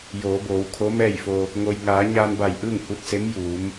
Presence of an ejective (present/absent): absent